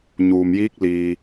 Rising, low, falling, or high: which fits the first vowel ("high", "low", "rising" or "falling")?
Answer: low